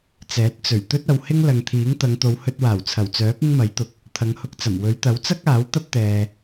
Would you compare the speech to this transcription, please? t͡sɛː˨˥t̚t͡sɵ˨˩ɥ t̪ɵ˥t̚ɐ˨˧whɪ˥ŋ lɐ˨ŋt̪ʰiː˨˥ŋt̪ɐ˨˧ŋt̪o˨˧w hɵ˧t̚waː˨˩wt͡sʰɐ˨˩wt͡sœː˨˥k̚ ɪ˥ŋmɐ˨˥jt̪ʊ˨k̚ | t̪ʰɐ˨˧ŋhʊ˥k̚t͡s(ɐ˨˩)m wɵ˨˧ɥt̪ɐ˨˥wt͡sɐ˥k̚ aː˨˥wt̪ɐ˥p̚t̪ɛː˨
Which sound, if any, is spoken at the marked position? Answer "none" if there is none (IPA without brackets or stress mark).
ɐ˨˩